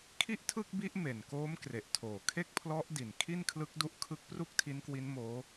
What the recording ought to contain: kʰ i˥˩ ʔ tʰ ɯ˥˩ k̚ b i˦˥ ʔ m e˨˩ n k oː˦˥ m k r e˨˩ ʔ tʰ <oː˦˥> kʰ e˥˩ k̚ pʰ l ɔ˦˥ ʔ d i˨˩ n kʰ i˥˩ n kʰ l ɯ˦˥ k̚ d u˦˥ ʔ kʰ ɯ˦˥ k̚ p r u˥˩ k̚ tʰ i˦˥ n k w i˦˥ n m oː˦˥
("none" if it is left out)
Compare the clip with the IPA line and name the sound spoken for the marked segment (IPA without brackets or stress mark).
oː˨˩